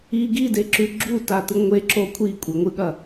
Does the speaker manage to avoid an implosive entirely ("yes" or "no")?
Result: no